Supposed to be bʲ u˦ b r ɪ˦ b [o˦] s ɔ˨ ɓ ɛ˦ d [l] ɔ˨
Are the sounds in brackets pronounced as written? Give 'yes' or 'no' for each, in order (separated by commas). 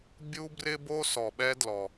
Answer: yes, yes